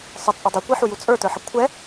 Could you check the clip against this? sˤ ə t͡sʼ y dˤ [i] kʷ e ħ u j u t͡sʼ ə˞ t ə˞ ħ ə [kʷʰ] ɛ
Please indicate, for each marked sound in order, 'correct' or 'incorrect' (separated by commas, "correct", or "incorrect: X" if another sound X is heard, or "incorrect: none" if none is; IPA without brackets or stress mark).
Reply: incorrect: y, correct